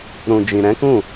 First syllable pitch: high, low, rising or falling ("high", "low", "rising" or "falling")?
low